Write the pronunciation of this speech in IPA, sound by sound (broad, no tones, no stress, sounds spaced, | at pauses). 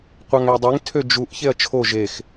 qʷ ɑ ŋ æ dˤ e ŋ tʰ ø d͡ʒ u ʔ ç e ɐ̯ t͡ʃʰ o ʒ e x